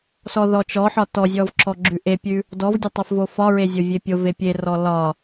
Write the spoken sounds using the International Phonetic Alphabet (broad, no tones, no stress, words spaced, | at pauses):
sɔðɔt͡ʃɔħɒ tɔzʲɔv ǁɔɡ͡ǁʉʔepʲʉ | dɔvdʲo tˤofvofɒɹe zʲovʲepʲove pʲerɔ lɒ